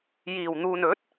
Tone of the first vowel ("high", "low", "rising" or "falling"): low